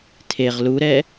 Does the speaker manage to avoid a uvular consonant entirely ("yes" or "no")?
no